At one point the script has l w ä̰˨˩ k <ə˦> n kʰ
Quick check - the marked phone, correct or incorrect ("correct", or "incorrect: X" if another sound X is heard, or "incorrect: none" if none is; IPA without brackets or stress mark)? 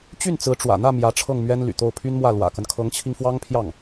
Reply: correct